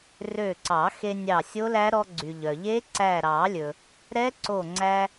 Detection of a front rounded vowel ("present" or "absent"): present